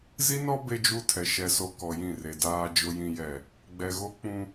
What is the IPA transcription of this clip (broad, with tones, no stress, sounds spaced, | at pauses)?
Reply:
z i˦ n ɔ˦ b e˦ d͡ʒ u˦ tʰ ɛ˨ ʃ ɛ˨ s o˨ k ɔ˨ j ĩ˦˨ r e˨ d aː˨ d͡ʒ ʊ˨ j ĩ˨ j ɛ˨ | ɡ͡b ɛ˨ ɣ o˦ k͡p ũ˦